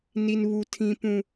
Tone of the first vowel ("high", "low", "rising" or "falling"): high